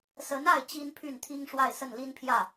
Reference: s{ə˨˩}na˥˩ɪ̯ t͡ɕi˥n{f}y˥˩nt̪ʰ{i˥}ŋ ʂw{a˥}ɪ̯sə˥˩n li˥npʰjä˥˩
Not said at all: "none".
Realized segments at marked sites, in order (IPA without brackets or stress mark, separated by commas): ə˧˥, pʰ, i˥, a˥˧